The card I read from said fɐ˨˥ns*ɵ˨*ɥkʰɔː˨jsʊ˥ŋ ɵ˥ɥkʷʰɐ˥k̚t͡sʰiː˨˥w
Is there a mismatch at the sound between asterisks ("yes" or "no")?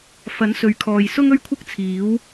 no